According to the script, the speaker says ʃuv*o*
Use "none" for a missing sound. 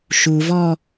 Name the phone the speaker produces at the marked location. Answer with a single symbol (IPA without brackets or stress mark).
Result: ɔ